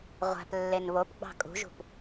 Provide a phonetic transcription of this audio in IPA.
ʁʷ æ̤ p lː e n β o p ɡ͡b ɑ̤ kʼ ṳ ʒ ṳ p

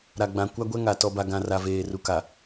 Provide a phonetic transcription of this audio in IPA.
ɾ a˨ ɡ͡b ã˨ kʷ a˦ ɡʷ ɛ˦ ŋ a˨ t ɔ˨ b a˨ ɡ ã˨ r a˨ v eː˨ r u˨ k a˨

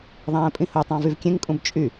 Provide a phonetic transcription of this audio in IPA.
ðˤ æ̃ː pʼ ĩ h o tˤ ɑ̃ v y v kʲ ẽ ŋ kʼ ũ b t͡ʃʼ y

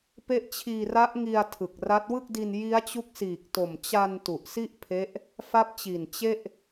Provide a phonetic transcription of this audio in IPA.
p e˦˥ ʔ t͡ɕʰ iː˧ r a˦˥ ʔ ŋ i˧ a̯ tʰ ɯ˨˩ k̚ r a˦˥ t̚ w ɯ˥˩ k̚ d i˧ n j i˦˥ a̯ t͡ɕ u˦˥ k̚ s iː˨˩ k̚ t o˨˩ m t͡ɕ a˧ n t u˨˩ ʔ s i˥˩ ʔ pʰ e˦˥ ʔ | f a˦˥ p̚ t͡ɕ i˨˩ n t͡ɕ e˥˩ ʔ

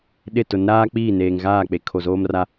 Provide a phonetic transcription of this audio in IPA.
ɗ ɪ˦˨ t ʊ˨˦ n ɾ aː˦ k͡p iː˦˨ n eː˨ ŋ ɣ aː˦˨ k͡p e˨ kʰ o˨ z oː˦ m r a˦

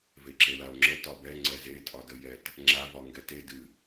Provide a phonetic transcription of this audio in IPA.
v e ǁ e l a o̯ ŋ͡ǁ ə t ɒ b ɛ ŋ͡ǀ ɛ z e tʼ ɒ d ə j ɛ t | ŋ͡ǁ a v ɒ ŋ ɡ ɛ t e d ɨ

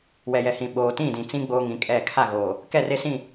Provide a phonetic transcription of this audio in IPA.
w ɛ˨ j ɛ˨ h ĩ˨ ɓ oː˨ t ĩ˦˨ d ĩ˨ t͡s ĩ˦ ɡ͡b oː˦ ŋ ĩ˨˦ kʼ ɛ˦˨ kʰ a˦˨ ɣ oː˨ | k ɛ˦˨ r e˦ s ĩ˦˨

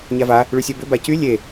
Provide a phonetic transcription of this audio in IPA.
ɲ a v a | ɭ y sʲ ɜ b ʏ b a c y lʲ e

